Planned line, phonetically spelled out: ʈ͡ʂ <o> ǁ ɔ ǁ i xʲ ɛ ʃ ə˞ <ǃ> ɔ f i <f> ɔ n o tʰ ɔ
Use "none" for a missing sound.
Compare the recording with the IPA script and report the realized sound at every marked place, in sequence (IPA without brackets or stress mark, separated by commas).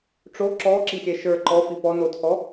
o, ǃ, p